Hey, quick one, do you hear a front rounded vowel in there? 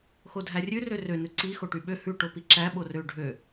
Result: yes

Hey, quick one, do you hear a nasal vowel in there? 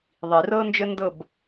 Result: no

